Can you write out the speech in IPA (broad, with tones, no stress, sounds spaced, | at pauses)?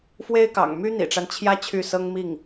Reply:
f w e˥ ɪ̯ k ɑ̰˨˩ ŋ m y˥ n̪ ḭ˨˩ ʈ͡ʂ a˦ n t͡ɕʰ j ä˥ t͡ɕʰ y˥˩ s ɤ˥ ŋ m i˥˩ ŋ